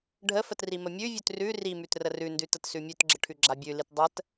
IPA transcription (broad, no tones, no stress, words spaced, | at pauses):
ɖʱəfətrimə mʲʉvʲʉt rʉ rimʉt rərʉndʉ tətsʉmʲʉtɡ͡ǁə ʈʰʉɡ͡ǁabʲʉlit dˤət